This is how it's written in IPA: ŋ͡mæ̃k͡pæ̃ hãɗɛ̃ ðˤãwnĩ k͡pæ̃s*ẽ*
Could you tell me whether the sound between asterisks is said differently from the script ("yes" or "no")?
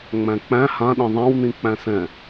yes